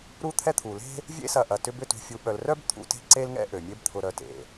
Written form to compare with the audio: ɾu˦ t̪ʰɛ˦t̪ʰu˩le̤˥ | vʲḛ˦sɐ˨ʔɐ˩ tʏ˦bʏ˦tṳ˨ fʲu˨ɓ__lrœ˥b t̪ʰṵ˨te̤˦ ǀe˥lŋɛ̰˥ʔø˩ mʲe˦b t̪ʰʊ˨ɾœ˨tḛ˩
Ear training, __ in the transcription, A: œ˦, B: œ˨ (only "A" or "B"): B